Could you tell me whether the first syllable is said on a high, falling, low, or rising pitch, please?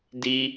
high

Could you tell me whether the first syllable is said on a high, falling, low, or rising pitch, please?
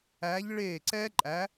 rising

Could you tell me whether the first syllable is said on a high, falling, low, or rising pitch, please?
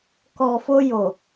low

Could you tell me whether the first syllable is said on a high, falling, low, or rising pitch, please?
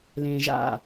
low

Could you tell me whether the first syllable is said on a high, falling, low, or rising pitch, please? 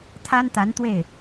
high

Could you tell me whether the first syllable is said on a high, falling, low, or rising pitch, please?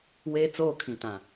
high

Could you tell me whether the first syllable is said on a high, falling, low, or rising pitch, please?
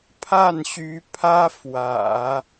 falling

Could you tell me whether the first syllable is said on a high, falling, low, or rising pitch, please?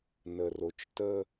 low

